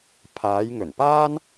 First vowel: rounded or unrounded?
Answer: unrounded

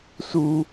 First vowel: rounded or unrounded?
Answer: rounded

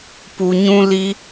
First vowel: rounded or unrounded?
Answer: rounded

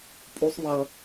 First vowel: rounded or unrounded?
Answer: rounded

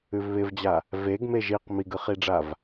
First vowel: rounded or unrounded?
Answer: rounded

